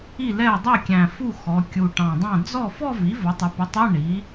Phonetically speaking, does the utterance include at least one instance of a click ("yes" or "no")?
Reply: no